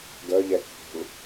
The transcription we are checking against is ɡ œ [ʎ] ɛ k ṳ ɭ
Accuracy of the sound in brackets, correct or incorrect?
correct